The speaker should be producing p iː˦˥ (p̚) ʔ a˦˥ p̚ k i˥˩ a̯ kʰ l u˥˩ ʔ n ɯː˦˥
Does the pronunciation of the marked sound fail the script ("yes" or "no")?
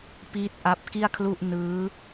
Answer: yes